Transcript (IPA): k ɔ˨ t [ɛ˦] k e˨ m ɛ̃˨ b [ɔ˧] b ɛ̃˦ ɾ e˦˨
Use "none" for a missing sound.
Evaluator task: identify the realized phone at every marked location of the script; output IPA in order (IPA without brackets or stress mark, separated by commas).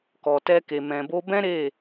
ɛ˧, o˧